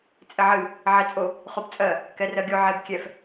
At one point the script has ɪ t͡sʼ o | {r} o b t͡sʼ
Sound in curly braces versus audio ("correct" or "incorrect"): incorrect